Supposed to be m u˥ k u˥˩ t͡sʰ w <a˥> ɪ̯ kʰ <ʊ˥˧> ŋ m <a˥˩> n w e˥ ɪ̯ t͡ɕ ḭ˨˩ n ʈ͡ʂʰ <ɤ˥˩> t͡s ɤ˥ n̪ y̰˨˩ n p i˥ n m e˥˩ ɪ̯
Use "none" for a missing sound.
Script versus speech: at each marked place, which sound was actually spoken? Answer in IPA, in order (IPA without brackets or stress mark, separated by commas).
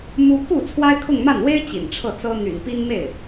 a˥, ʊ˥˧, a˥˩, ɤ˥˩